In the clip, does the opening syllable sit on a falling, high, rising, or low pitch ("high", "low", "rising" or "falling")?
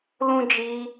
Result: high